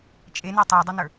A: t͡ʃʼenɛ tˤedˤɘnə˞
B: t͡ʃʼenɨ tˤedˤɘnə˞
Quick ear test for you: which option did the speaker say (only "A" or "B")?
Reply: A